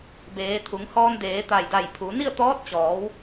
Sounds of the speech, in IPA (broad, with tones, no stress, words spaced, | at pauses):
beː˩˧t̪ʰu˩˧ŋhɔː˧ndeː˩˧ t̪a˧˩jda˧˩jpʰu˩˧ ni˥˨ə̯t̪ɔː˧˥t̚t͡ɕɔː˩˧w